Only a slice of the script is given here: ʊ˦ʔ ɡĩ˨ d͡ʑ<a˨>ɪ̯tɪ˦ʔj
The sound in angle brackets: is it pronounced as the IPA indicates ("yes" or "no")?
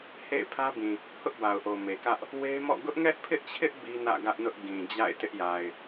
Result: no